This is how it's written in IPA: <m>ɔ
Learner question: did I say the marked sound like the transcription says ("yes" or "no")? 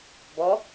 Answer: no